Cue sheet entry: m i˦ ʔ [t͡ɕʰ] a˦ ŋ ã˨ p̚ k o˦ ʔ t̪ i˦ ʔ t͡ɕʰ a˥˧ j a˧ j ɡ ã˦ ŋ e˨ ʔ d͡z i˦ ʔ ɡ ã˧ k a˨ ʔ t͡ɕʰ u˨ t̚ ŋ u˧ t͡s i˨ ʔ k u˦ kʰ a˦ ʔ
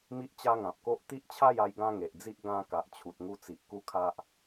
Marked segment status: incorrect: t͡ɕ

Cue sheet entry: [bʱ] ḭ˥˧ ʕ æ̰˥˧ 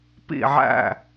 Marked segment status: incorrect: p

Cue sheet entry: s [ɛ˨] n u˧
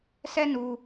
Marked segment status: incorrect: ɛ˦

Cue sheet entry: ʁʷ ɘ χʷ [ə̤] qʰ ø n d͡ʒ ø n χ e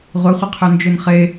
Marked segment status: incorrect: ə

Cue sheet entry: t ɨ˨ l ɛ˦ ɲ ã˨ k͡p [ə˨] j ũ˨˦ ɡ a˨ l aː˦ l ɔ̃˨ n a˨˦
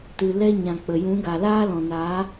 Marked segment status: correct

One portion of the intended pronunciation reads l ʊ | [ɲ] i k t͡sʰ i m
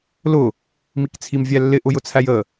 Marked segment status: incorrect: m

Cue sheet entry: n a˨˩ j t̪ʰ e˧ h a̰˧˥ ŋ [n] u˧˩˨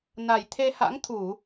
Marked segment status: incorrect: t̪ʰ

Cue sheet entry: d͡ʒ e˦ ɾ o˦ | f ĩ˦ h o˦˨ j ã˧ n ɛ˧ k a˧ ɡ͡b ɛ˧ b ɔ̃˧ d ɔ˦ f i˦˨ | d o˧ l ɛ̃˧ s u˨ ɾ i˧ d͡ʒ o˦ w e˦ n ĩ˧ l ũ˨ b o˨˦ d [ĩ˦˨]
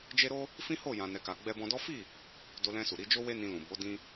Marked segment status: incorrect: ĩ˧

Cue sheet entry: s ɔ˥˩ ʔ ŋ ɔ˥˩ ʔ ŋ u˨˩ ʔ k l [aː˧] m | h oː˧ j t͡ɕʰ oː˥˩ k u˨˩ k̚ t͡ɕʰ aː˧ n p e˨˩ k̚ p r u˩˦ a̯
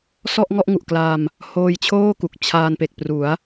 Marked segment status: correct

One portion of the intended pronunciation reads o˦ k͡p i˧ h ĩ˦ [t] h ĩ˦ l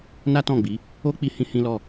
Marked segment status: incorrect: none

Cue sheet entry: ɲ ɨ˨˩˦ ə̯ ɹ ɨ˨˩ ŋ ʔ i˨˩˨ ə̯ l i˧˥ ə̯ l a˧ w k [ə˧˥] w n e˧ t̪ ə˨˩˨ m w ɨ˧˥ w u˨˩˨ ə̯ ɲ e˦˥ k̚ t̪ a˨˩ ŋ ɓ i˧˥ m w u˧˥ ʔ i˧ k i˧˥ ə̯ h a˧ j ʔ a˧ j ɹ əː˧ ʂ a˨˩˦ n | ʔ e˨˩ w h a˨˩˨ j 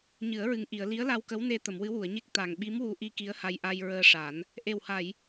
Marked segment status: correct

